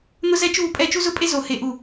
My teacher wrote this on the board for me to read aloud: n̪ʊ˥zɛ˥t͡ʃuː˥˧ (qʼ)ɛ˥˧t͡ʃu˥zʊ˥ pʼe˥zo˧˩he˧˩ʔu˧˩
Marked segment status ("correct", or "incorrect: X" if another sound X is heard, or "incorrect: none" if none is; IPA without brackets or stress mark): incorrect: pʼ